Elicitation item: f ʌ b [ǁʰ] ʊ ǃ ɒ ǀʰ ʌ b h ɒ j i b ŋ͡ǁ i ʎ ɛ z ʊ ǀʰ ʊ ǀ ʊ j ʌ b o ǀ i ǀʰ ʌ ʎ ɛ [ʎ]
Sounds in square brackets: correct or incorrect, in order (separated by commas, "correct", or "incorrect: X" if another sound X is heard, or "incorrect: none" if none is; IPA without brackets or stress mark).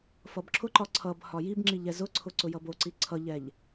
correct, correct